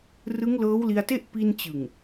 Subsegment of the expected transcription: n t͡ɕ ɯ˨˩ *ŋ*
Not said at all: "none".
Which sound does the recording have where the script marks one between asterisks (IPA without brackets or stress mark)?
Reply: ŋ